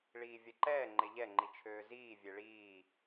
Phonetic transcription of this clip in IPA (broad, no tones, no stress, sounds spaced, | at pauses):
ɭ iː vʲ ɛ ǃ ɛː ŋ͡ǃ e ʎ ɛ ŋ͡ǃ i t͡ʃʰ øː z iː vʲ e ɭ iː